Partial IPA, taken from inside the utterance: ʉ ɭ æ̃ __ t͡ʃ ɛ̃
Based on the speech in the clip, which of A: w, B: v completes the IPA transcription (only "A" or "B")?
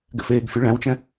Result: A